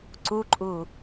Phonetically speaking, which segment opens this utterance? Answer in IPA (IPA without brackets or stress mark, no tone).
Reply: ǀ